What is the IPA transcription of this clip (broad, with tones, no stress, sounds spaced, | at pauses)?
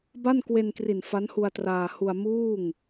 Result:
b a˥˩ n k w e˧ n k r i˨˩ n f a˦˥ n h u˧ a̯ t r aː˧ h u˧ a̯ m uː˥˩ ŋ